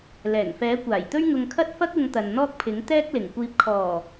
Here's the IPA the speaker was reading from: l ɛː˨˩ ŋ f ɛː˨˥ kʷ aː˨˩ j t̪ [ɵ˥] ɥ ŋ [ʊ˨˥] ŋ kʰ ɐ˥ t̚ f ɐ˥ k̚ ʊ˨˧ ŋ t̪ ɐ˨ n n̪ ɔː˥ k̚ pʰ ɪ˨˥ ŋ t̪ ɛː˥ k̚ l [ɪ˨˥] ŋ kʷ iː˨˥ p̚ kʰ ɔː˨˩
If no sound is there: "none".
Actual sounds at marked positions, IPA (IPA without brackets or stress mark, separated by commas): ɵ˥, ʊ˧, ɪ˨˩